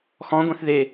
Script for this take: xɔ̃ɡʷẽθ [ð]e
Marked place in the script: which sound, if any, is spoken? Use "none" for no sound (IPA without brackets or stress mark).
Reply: ð